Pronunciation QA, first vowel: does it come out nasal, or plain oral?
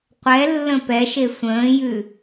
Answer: oral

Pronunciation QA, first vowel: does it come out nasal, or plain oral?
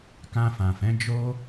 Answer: nasal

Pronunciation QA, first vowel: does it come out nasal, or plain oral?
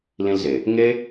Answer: nasal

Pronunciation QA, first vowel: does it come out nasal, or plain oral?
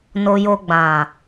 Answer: oral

